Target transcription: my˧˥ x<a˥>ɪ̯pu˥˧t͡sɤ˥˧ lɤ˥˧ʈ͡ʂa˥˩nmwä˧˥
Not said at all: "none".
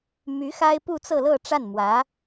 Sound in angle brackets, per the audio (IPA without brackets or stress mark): a˥